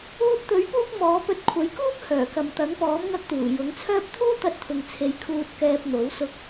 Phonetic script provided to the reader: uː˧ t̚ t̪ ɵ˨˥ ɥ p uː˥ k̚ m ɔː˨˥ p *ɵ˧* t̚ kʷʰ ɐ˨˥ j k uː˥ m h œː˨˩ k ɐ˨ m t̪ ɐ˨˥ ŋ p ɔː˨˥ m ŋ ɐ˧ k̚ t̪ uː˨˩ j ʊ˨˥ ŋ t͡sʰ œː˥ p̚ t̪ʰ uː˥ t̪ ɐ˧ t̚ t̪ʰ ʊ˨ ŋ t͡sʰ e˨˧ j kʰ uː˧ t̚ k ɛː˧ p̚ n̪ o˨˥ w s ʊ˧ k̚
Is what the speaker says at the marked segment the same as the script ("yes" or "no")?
yes